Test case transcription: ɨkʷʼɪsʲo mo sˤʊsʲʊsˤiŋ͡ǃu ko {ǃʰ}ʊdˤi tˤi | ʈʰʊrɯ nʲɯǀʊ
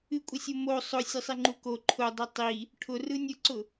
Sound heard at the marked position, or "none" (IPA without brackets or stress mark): ǃʰ